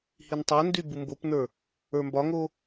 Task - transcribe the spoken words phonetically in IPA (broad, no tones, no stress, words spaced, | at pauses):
hintˤondy bumbopnə˞ | ə˞mbɒŋo